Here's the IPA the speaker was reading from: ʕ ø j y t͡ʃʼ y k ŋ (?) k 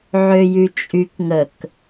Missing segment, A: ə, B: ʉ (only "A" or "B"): A